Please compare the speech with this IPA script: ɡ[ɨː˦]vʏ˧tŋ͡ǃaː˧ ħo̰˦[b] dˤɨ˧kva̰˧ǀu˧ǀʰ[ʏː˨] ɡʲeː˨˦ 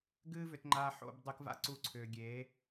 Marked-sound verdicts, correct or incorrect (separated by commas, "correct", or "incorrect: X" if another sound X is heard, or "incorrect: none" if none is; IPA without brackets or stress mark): correct, correct, correct